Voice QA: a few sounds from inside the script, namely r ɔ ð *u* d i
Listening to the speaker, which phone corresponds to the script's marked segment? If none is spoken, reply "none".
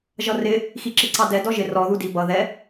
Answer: u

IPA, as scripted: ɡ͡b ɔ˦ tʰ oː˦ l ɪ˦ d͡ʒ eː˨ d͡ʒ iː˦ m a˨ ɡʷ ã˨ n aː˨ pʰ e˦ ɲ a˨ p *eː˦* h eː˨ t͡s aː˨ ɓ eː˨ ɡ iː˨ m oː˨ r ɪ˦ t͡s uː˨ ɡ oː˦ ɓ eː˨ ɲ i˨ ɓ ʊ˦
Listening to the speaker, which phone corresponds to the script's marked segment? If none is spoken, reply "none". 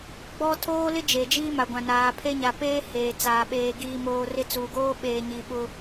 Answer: eː˦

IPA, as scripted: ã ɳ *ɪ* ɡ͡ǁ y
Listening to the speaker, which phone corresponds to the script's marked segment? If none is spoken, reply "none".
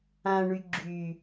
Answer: y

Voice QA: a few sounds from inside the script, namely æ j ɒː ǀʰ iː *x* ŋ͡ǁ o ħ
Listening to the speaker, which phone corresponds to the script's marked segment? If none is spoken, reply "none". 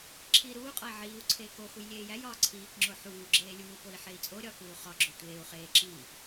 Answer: k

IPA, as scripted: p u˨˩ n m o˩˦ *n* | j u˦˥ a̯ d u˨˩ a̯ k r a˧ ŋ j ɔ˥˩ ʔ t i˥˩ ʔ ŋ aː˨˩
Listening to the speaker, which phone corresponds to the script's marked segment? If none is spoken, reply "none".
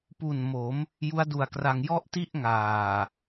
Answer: m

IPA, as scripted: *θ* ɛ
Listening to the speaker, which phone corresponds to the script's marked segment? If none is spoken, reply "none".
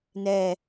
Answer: n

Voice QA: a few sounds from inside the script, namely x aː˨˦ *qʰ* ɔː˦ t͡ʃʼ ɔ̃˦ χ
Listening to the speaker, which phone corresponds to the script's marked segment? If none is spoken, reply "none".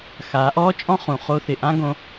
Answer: ʔ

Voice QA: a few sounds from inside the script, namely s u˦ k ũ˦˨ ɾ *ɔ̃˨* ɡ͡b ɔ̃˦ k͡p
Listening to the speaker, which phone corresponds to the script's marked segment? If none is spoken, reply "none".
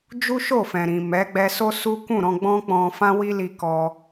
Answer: ɔ̃˧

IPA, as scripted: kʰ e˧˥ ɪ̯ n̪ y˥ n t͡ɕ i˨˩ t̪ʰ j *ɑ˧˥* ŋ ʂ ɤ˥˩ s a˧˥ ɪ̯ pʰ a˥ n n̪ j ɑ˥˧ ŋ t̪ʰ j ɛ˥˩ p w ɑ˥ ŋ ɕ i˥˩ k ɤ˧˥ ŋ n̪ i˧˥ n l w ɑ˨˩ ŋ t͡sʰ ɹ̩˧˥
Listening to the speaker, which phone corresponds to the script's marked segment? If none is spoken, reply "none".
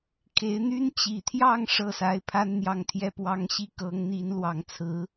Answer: ɑ˥˧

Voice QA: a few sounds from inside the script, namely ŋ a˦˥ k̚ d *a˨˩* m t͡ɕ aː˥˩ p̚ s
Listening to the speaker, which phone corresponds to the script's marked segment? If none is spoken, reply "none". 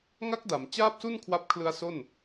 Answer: a˩˦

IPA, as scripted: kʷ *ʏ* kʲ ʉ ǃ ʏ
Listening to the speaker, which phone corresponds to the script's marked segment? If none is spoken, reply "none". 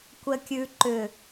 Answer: ɛ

